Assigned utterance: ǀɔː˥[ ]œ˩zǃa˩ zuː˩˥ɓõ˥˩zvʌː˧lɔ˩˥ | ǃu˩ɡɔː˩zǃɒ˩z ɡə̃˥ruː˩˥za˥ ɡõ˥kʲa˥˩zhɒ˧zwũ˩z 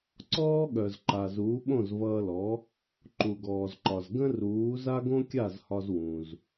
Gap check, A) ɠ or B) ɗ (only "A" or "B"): A